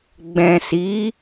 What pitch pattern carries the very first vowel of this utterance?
low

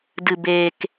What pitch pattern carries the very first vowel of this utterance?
low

